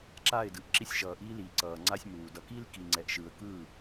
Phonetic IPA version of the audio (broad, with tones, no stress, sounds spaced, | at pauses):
ǁ a˦˨ ɪ̯ d ɯ˨ ʔ ǁ i˧ sʲ ʃ ʌː˨ ʔ iː˧ l iː˨ ǀ ʌː˨ ŋ͡ǀ a˦ sʲ m uː˨ d ʌ˧ k iː˦ l k i˨ ŋ͡ǀ ɛ˨ ʔ ʃ ɯː˨ ə̯ k ɯː˦˨